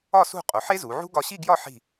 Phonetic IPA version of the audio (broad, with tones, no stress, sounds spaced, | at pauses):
ɒ˥˧ s ṳ˥˧ qʼ o˩˧ ħ e˥ z u˩˧ ʕ ṳ˥ ɡ ɒ˧ ɕ i˥˧ ɡ j ɒ˥˧ ħ i̤˧˩